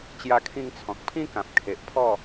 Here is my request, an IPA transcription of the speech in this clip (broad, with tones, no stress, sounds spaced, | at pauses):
t͡ɕ j a˧ kʰ ĩ˧ ŋ t͡sʰ ɔ̃˨ k̚ pʰ ĩ˦ k ã˨ p̚ kʰ e˨ ʔ pʰ ɔ˥˧